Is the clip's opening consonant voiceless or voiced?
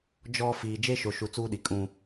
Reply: voiced